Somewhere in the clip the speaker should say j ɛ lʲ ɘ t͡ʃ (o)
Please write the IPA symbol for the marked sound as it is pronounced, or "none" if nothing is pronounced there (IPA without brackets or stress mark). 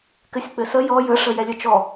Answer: ɔ